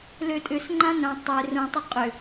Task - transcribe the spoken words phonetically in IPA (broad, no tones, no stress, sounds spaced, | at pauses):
l ø tʼ ʏ s ŋ͡ǃ ã n œ̃ tˤ e r ũ tˤ ʏ qʼ ʏ